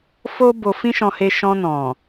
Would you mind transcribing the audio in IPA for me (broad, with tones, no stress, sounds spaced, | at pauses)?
f o˦ b o˧ f ĩ˦ ʃ ɔ̃˧ h e˧ ʃ ɔ̃˧ n ɔ̃˨